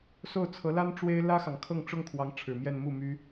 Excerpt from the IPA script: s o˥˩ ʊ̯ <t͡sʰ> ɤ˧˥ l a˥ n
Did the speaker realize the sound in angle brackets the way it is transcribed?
yes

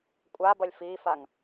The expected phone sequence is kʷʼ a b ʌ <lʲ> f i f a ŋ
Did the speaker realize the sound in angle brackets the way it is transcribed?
yes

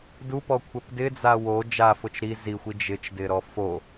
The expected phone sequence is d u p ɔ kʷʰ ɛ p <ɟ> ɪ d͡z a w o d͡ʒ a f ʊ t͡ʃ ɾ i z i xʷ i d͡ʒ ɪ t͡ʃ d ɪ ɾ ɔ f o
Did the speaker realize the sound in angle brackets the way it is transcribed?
no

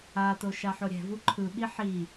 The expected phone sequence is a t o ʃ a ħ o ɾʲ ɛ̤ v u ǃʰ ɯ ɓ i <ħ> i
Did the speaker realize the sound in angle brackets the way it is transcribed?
yes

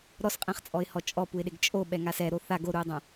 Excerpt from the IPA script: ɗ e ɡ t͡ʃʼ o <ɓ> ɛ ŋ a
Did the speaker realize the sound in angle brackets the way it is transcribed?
yes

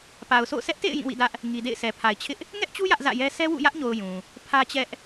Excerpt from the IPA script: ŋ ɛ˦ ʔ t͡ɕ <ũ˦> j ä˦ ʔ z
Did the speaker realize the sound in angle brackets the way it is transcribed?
no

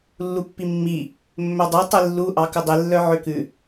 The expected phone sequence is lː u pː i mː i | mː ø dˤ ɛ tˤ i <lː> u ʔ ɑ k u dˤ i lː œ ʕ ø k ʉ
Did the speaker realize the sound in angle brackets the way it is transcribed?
yes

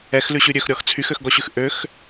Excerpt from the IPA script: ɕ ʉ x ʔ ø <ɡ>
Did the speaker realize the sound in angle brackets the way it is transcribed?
no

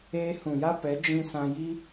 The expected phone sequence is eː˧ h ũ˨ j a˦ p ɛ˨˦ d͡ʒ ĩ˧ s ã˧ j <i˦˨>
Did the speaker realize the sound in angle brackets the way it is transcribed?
no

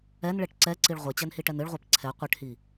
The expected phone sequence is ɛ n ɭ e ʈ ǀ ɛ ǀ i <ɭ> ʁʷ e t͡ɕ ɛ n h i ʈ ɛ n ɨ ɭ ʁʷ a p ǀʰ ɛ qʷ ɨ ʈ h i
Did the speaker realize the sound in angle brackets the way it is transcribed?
yes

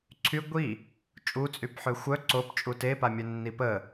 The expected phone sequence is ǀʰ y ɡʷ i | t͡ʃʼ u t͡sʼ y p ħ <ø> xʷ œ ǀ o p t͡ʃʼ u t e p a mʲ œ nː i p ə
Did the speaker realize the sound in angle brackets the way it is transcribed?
yes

